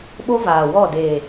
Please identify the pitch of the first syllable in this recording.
high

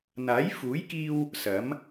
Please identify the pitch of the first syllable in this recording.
rising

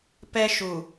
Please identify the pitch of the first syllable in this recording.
high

